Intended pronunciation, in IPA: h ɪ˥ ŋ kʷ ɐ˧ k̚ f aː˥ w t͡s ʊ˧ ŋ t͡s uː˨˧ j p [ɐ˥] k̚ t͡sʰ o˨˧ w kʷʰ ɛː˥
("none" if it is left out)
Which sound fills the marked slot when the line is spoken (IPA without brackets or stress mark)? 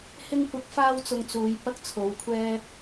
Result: ɐ˥